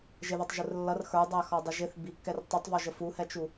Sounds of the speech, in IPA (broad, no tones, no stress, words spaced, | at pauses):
ʒɪðɔtˤʒʊr lːʌr xə˞dˤæxɔdˤɪ ʒɪθ bikːɛr tˤutˤvɔʒə fuhɛt͡ʃu